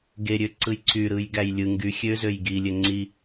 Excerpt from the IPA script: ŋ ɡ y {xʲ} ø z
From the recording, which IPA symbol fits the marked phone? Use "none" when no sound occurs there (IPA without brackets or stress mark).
xʲ